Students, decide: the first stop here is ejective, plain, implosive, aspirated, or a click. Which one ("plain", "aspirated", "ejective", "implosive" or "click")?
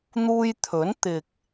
aspirated